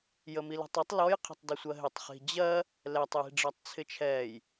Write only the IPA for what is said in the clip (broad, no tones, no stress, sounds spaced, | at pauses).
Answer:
j ə m i l ə̤ tˤ ə tˤ l ɔ j qʰ ə̤ tˤ d ɪ sʷ ɜ ɦ ɪ tˤ χ i̤ d͡ʑ ɜ | l ɛ tˤ j i̤ ɖ͡ʐ ɜ tˤ t͡sʰ ɪ t͡ʃʰ ɛː j